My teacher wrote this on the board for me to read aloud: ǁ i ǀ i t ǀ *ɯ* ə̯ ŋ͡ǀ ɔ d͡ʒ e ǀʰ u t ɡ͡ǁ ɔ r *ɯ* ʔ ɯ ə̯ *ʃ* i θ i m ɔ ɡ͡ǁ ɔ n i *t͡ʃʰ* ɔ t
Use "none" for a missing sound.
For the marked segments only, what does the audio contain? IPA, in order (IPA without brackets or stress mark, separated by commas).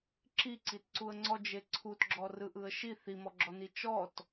u, ɯ, ʃ, t͡ʃ